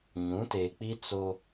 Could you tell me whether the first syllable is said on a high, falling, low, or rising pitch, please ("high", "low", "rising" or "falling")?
rising